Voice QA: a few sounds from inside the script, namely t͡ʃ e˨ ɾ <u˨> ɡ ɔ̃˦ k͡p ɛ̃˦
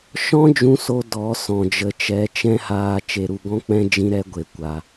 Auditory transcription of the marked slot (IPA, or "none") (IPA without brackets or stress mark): u˨